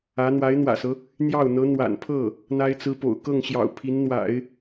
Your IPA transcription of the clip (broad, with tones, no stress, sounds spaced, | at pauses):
ä˧˥ n̪ w a˧˥ ɪ̯ n̪ w ä̰˨˩ s ɤ˦ | n̪ j ɑ˥˩ ʊ̯ n̪ ɤ˧˥ n̪ w a̰˨˩ n pʰ ɤ˥˩ | n̪ a˥ ɪ̯ t͡s ɹ̩˥ p o̰˨˩ ʊ̯ k ɤ˥˩ ŋ ɕ j ɑ̰˨˩ ʊ̯ pʰ i˧˥ n n̪ w a̰˨˩˦ ɪ̯